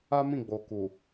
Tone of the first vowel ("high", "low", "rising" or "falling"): high